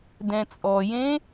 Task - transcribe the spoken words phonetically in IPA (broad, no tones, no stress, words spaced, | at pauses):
dɛ̃t͡sʼɔjẽ